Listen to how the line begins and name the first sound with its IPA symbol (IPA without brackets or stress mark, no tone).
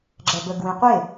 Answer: ɡ͡ǁ